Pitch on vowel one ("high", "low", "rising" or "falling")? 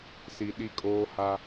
low